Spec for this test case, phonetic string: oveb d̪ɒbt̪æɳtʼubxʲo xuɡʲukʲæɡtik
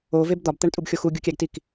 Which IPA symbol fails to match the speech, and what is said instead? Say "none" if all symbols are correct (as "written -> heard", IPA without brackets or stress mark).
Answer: none